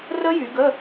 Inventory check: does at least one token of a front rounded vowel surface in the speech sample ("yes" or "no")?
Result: yes